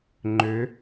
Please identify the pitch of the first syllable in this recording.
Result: rising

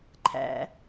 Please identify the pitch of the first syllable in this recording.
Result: low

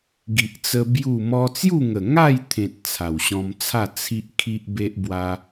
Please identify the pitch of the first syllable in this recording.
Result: low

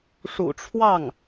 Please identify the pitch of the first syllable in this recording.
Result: low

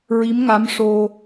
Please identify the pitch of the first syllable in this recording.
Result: rising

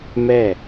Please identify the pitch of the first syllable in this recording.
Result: falling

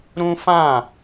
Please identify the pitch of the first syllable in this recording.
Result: high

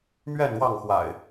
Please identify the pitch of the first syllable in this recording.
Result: falling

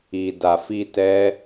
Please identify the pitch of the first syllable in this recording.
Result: low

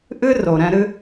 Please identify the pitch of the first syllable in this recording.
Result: high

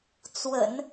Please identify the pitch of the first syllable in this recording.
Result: low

